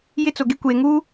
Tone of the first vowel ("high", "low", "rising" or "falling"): high